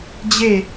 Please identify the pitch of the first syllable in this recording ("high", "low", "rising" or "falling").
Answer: falling